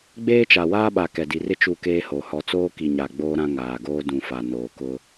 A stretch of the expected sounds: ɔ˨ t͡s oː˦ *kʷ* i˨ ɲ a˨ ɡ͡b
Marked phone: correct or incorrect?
incorrect: k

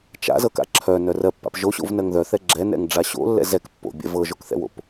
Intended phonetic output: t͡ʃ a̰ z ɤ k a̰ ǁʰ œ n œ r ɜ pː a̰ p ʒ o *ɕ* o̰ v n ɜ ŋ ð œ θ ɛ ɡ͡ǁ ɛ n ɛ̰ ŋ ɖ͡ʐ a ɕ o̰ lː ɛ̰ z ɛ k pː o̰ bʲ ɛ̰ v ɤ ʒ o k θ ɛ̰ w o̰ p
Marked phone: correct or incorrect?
correct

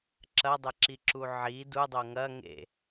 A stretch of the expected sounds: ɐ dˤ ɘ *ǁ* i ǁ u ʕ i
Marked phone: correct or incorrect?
correct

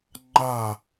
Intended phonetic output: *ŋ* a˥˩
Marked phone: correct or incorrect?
incorrect: ŋ͡ǃ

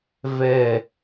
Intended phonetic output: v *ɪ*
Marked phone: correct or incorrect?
incorrect: ɛ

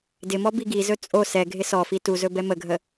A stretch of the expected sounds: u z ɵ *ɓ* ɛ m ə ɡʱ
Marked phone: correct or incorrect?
incorrect: b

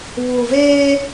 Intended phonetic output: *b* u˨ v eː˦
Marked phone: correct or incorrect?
incorrect: β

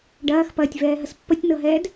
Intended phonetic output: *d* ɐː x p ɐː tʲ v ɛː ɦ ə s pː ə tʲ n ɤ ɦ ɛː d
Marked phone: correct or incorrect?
incorrect: ɖ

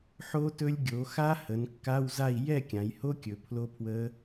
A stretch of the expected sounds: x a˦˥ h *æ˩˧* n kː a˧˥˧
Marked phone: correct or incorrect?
incorrect: ə˩˧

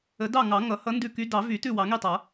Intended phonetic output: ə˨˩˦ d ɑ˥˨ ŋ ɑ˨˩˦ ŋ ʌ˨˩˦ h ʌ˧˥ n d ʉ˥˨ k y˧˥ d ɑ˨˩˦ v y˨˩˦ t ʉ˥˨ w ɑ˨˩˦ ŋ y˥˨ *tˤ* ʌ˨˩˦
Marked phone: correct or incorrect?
correct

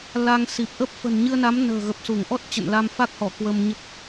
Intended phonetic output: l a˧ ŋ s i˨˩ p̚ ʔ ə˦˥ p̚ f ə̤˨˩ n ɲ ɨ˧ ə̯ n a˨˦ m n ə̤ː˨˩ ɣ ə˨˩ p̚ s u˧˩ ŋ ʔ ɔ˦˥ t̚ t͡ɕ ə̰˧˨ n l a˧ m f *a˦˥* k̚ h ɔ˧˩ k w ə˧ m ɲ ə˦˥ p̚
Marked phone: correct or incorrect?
correct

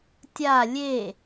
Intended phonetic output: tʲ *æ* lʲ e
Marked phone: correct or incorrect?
incorrect: a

